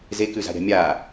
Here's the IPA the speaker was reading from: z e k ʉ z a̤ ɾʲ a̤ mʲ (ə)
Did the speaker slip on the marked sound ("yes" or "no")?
yes